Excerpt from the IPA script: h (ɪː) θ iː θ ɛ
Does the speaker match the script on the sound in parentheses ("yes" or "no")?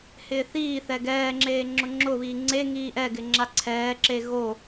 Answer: yes